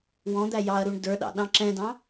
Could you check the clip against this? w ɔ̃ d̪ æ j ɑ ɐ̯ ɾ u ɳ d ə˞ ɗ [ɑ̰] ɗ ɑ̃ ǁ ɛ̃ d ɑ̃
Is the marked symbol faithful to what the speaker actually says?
yes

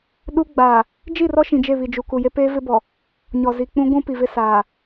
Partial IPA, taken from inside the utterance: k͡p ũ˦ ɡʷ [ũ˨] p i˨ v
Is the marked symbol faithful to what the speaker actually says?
no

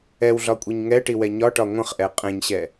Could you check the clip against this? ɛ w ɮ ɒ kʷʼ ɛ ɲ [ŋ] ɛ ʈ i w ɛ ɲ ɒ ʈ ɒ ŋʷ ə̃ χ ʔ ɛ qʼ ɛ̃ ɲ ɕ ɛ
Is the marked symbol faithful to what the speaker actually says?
yes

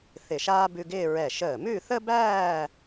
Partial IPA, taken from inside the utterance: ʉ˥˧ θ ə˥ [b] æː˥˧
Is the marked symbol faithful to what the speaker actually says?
yes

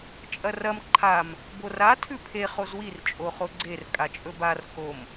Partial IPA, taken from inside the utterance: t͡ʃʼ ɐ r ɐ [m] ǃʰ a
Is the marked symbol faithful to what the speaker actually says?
yes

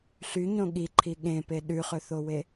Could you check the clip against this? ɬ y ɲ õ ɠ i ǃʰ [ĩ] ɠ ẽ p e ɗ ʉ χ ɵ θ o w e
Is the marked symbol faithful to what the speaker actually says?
no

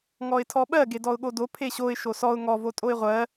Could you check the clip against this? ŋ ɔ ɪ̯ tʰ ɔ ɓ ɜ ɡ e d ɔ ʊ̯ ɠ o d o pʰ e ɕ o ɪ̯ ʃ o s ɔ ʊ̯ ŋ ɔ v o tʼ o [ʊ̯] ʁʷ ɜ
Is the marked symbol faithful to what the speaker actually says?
no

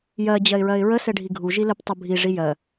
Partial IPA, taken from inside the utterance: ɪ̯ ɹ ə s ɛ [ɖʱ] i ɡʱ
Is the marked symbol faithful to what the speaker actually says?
yes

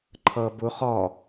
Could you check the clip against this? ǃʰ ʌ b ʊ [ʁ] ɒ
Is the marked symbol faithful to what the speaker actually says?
no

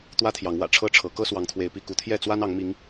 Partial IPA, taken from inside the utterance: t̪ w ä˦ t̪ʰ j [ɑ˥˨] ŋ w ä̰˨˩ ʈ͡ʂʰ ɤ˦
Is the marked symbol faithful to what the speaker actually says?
no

